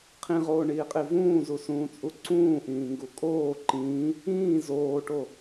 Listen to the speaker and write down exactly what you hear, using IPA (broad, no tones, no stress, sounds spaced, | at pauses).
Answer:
qʰ ĩ ʁ oː ɳ iː qʼ i v ũː z u s ũː t͡sʼ u ǀ ũː ʔ ĩː ŋ ɡ u kʼ oː ǃ ĩː | ĩː z oː ʈ o